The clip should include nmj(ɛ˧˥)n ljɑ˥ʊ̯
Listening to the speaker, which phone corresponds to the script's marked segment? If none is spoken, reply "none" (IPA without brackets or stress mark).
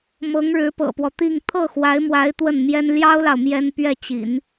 ɛ˥